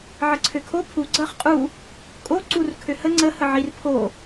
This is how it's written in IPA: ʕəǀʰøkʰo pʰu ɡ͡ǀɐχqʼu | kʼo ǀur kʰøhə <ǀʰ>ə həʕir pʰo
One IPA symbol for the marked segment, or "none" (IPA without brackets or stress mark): ŋ͡ǀ